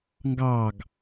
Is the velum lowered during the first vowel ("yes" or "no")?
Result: no